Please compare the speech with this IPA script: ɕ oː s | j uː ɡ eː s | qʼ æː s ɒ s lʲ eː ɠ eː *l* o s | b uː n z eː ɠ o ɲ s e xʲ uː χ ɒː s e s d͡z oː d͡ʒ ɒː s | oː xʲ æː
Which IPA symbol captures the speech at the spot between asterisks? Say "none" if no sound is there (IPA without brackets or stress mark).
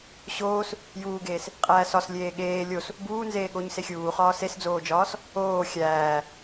lʲ